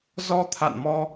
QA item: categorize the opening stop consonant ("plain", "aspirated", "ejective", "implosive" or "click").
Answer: aspirated